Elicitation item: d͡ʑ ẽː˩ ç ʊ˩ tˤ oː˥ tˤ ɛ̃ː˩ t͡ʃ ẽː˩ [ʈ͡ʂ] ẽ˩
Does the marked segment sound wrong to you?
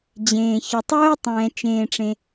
no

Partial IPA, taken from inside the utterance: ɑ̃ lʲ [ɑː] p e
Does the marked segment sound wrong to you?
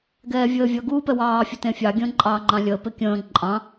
yes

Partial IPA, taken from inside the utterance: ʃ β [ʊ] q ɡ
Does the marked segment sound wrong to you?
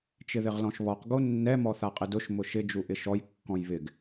yes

